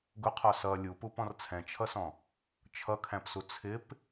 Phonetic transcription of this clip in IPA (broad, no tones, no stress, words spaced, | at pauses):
ɡʊqʰɔ sʌ lʲupupɔ̃r t͡sʰɛ̃t͡ʃʰʌsɔ̃ | t͡ʃʰʌkʰæ̃psu t͡sʰɪp